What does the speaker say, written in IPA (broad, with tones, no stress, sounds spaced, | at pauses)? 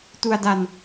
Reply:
t u˧ a̯ d a˧ n